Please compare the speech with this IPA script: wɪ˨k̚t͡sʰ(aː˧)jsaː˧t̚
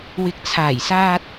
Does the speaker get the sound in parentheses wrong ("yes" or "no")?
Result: yes